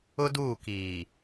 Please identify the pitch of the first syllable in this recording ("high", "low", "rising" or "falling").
high